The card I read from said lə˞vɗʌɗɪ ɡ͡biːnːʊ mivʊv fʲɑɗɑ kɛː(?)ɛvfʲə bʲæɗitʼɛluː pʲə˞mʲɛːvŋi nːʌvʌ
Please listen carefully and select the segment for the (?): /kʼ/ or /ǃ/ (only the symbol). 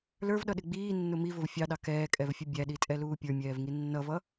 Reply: kʼ